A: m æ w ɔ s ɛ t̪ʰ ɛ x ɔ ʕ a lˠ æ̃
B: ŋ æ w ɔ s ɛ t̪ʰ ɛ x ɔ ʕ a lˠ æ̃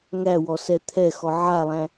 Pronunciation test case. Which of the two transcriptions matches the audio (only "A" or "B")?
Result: B